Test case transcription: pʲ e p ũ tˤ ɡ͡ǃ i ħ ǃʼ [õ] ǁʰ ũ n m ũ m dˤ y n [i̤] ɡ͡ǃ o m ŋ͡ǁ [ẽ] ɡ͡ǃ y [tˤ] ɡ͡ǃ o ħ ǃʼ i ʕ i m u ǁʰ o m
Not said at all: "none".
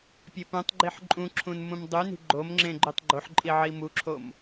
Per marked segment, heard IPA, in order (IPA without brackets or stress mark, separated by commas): ũ, i̤, ẽ, tˤ